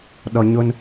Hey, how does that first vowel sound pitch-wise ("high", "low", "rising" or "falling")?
low